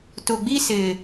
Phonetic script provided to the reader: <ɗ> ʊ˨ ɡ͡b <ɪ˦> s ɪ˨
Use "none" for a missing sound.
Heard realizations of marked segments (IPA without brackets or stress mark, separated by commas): t, i˦